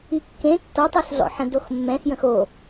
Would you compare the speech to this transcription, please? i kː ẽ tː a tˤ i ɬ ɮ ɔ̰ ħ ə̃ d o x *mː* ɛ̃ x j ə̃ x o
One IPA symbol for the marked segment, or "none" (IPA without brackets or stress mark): mː